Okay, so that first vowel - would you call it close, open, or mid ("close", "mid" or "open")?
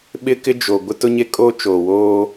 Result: close